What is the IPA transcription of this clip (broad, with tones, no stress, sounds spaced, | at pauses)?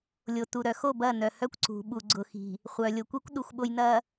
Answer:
lʲ o˨ t u˨ ɾ œ˨ x o˦˨ b ɐ˦˨ n œ˨ h œ˦ kʷ ǀ ṳ˨ ɓ u˨ ɡ͡ǀ ʊ˨ x i̤˨ | χʷ œ˨ lʲ o˨ kʷ i˦ kʷ ɗ u˨ xʷ ɓ o˨ j n ɐ˨